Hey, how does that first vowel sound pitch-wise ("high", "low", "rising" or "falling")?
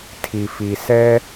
low